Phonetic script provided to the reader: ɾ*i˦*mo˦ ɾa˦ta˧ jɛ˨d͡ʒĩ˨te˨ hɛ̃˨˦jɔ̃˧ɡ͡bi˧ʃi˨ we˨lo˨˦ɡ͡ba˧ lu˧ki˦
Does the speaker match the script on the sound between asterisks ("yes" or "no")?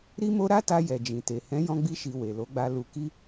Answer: yes